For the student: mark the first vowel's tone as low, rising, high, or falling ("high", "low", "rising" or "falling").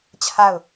falling